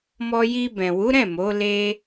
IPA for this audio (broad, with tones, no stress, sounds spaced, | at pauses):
m ɔ˧ j i˧ b ɛ̃˨ w u˨˦ ɾ ɛ̃˦˨ m o˨˦ l e˧